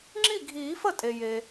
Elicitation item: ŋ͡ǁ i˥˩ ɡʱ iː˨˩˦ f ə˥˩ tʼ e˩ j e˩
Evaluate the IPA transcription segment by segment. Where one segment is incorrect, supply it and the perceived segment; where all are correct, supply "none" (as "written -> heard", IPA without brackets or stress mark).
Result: none